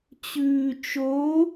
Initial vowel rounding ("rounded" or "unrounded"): rounded